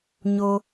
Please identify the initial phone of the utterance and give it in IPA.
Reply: ɲ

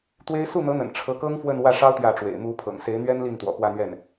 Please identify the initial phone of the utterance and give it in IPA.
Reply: t̪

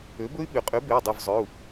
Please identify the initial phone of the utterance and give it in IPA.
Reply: ø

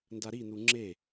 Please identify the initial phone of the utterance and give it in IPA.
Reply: n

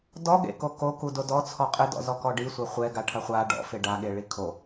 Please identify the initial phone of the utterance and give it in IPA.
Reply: d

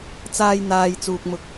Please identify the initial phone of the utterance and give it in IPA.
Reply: t͡s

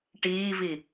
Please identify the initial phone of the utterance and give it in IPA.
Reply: ʈ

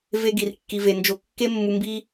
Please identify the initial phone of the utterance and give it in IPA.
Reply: v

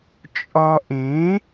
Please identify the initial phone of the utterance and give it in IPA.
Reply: t͡ʃʼ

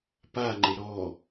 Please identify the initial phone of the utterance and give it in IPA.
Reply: p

